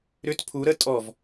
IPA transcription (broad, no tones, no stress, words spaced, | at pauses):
ɾʏt pʰu ɾə tʼɔv